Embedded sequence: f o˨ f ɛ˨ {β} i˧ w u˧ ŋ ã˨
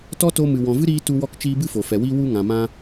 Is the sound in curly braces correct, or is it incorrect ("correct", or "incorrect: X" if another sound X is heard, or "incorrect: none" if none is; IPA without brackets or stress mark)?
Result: incorrect: w